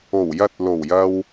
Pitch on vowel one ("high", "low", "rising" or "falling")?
low